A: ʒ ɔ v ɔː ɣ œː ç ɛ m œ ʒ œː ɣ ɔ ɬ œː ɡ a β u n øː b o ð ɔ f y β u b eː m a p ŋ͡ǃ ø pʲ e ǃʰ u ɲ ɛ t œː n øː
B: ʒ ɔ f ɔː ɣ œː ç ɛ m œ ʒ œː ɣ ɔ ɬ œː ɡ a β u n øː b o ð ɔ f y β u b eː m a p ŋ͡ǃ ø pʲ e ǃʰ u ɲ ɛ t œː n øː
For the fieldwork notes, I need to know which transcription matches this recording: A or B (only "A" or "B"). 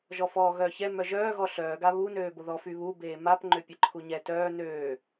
B